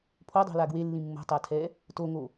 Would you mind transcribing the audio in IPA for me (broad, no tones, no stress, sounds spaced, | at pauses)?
pʰ o dˤ o̤ l a ɡ w e lː ĩ mː o̤ tˤ a tʰ ɛ | t o ŋ o